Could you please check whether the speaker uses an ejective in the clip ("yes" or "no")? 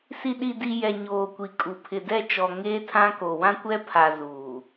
yes